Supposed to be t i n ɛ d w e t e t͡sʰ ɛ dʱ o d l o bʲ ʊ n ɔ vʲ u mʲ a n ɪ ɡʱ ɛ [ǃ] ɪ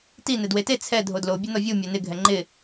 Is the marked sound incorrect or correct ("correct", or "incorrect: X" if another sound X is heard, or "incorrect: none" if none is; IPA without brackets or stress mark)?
incorrect: ŋ͡ǃ